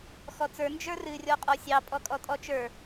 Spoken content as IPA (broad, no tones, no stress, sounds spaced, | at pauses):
x ɔ t͡s ə˞ n d͡ʒ ə˞ r ɨ rʲ ɔ qʼ ɔ sʲ ɑ pʼ ɔ kʼ ɔ tʼ ɔ t͡ʃ ə˞